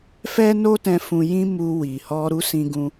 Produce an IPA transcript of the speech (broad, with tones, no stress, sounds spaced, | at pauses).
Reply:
f ɛ˦ n o˦ t ɛ̃˧ f ũ˧ j ĩ˦ m u˧ w i˨ h ɔ˧ ɾ u˦ s ĩ˧ ɡ ũ˧